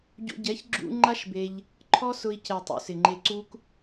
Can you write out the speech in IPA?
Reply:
ɟ ṵ˧ ɟ ɛ˨˦ ç ɡ͡ǁ ṵ˦ ŋ͡ǃ a˦ ʃ b e˧ ʎ | ǃʰ ɔ˦ s ʊ˧ i̯ c ɛ˨ tˤ ṵ˨ s ɪ˨ ŋ͡ǃ e˧ ǀ u˦ k

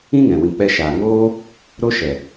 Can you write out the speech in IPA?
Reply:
ĩ˦ ŋ ɛ̃˨ w ĩ˨ k͡p ɛ˧ ʃ aː˨ ŋ oː˦ | ɾ o˦ ʃ ɛ˨

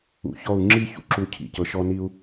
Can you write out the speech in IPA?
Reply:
ṵ˨ ç ɔ˦˨ u̯ ŋ͡ǁ i˦˨ ç ṵ˦ ǁ u˨ cʰ ḭ˨ c ɤ˨ ʃ ɔ˦ n i˦ u̯

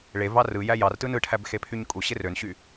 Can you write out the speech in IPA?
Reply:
ɭ e v ɑ r ɯ j æ j ɑ r t ɯ n ɯ ʈʰ æ b x e pʰ y ɲ kʼ u ɕ e r ø n ɕ y

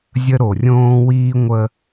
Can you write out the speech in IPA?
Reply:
zʲ ə˦ ɾ o˨ rʲ õː˦ w iː˦ ŋʷ ə˦

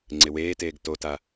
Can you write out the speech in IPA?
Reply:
ŋ͡ǀ ɪ w eː t eː ɡ t o t a

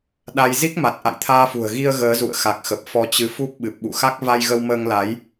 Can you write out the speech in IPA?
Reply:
ɗ a˧ j z i˦˥ k̚ m a˨˩ t̚ ʔ a̰˧˨ j t̪ʰ aː˧ f ṳ˨˩ ə̯ ɣ i˧ ə̯ ɣ əː˨˦ z ṵ˧˨ ə̯ x a˨˩ k̚ x ə˨˩ p̚ f ɔ˨˦ t͡ɕ ɨ˨˦ f u˦˥ p̚ ɓ ɨ˨˩ p̚ ɓ ṵ˧˨ x a˦˥ k̚ v a˧ j ɣ ə˧ w m əː˧ ŋ l a˨˦ j

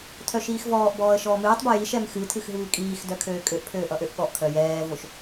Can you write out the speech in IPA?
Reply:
tʰ œ ʃ iː x v ɔː ʔ b ɔː ə̯ ʃ ɔː m ɨː tˤ b o j i ʃ ɛ m x ɨ tʰ ɨ x ɦ ɨː kʼ iː x d œ kʰ øː kʼ ø ʔ pʰ øː ʔ ʌ ʔ ø ʔ ɠ ɔ ʔ kʰ œ j ɛː v o ʃ

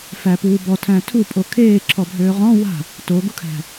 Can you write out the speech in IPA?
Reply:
f æ p uː b ɔ tʰ æ̃ tʰ u pʼ o kʰ eː ǁʰ ɔ bʱ øː ʁ ɔ̃ w a̤ | t o ɡ u kʰ æ̤

